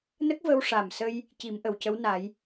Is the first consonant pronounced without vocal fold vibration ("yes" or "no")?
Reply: no